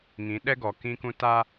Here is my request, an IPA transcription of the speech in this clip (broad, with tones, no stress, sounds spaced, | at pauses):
ŋ ĩ˨˦ ɗ ɛ˦ ɡ ɔ˨ k ĩ˦ k ũ˦ t a˦